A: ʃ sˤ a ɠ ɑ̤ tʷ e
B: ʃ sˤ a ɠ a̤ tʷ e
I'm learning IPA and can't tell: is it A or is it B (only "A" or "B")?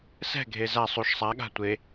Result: B